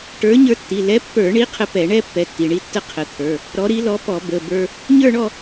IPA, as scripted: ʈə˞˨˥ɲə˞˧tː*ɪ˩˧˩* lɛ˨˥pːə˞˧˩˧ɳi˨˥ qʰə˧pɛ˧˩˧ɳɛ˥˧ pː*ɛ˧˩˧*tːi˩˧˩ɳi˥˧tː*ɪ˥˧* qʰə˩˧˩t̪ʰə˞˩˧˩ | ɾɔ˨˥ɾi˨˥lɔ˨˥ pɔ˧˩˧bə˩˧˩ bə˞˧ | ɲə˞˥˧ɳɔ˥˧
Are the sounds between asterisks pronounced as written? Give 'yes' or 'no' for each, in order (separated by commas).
no, no, no